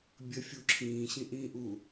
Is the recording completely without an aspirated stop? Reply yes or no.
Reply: no